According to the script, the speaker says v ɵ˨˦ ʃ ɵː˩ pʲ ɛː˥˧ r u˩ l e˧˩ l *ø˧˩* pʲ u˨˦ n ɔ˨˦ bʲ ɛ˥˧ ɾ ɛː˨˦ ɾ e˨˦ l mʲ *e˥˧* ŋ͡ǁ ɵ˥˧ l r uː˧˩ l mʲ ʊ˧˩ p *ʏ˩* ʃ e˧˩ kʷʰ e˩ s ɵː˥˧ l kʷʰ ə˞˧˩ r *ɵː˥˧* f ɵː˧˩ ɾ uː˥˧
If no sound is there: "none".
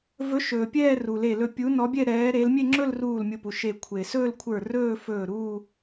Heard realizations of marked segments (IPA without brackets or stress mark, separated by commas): ɵ˧˩, e˥˧, u˩, ɵː˥˧